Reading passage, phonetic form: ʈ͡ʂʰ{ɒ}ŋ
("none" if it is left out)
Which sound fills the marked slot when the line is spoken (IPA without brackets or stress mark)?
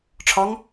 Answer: ɒ